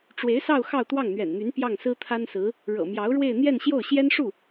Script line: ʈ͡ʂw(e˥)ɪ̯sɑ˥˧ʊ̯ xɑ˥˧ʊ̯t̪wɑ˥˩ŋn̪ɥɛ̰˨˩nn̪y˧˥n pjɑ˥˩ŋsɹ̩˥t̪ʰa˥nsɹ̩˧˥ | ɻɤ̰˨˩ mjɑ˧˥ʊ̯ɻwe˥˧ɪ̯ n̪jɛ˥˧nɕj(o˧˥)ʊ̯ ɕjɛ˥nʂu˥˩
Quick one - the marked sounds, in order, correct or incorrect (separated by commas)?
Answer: incorrect, incorrect